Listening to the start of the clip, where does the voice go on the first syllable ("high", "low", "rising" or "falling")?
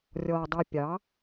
low